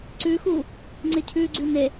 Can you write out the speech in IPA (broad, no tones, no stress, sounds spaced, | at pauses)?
ǀ ʉ x u | ŋ͡ǀ ɪ cʰ ʉ ɡ͡ǀ ʉ n e